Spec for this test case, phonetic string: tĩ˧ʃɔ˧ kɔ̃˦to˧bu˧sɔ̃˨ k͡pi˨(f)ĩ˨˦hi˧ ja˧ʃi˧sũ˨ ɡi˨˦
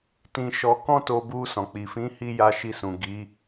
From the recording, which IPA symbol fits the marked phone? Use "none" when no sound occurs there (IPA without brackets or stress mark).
f